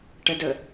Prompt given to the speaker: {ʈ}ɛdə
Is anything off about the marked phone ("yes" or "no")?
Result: no